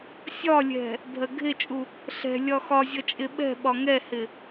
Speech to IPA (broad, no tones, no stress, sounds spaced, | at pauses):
sʲ ɒ lʲ ɛ̤ | bʱ ɜ ɡʱ ɪ t͡ʃʼ u | ɬ ɛ̤ lʲ ɒ x ɒ zʲ ʌ t͡ʃʼ ɪ ɓ ɛ̤ ɓ ɒ ŋ ɛ h ɪ